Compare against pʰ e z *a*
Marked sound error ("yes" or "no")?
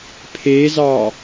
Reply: yes